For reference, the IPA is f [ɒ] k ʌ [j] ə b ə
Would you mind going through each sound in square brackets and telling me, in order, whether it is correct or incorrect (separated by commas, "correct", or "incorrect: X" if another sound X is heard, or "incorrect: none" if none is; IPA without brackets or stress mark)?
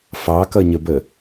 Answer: incorrect: ɑ, incorrect: ɲ